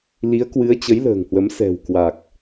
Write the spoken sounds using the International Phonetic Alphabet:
l i˨˦ ə̯ k w ɨ˨˦ ə̯ t͡ɕ ə˨˦ j l ə̤ː˨˩ ŋ h w ə˨˦ m s ɛ̤˨˩ w k w a˨˩ k̚

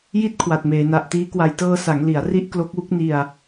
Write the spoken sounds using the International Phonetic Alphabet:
j i˦˥ t̚ kʰ w a˨˩ t̚ m eː˩˦ n a˨˩ ʔ t iː˦˥ k w a˧ j t ɤː˧ s a˩˦ ŋ l i˩˦ a̯ r i˦˥ ʔ k l o˦˥ k̚ w u˦˥ k̚ n i˧ a̯

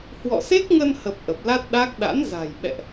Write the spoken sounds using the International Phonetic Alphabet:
h w ɔ̰˧˨ s e˦˥ k̚ ŋ ə˧ n h ə˨˩ p̚ ʔ ə˨˩ p̚ l a˦˥ t̚ ɗ a˦˥ k̚ ɗ a̰˧˥ n z a̤˨˩ j ɓ ɛ̰˧˨ ʔ

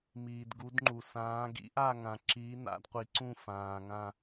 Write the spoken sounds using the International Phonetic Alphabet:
m iː˩ d ɡ u˨˦ d ŋ͡ǃ u˩ s ãː˨˦ ɡ ḭ˨˦ ʔ a˦˨ ŋ ã˩ ǁ iː˨˦ n a̰˨˦ d qʷ i˩ ǀ ũ˦˨ f ãː˩ ŋ ã˦˨

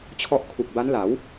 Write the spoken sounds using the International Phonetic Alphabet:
t͡ɕʰ ɔ˦˥ ʔ kʰ u˨˩ k̚ b a˦˥ n l a˩˦ w

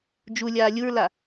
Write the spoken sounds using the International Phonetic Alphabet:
d͡ʒ u lʲ aː lʲ u ɹ l a

